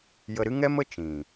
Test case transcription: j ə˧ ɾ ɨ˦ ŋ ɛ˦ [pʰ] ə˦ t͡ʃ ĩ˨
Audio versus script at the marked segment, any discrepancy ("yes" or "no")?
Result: yes